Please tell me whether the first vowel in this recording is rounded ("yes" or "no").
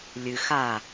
no